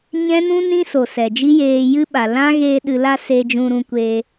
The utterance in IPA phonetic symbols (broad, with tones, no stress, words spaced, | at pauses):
ɲɛ̃˦nũ˦ nĩ˦ so˨ sɛ˨d͡ʒi˦jeː˧ jɨ˦ɓa˨ lã˦ɣeː˧ ɗɨ˨la˧ se˧ d͡ʒũ˧ɾũ˧kʷe˧